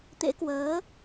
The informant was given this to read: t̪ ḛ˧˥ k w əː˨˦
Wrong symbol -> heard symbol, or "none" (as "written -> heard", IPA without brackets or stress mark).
none